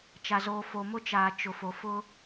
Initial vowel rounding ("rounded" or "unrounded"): unrounded